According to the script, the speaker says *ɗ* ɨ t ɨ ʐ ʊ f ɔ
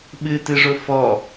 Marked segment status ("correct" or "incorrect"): incorrect